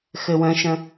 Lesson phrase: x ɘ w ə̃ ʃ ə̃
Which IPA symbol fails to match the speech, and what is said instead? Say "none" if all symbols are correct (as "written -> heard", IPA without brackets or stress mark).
none